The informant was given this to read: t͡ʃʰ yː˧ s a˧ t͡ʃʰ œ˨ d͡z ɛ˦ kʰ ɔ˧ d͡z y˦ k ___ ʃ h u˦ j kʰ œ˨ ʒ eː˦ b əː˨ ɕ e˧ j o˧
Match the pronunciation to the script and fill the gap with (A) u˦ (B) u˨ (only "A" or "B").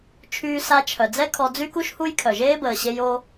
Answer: A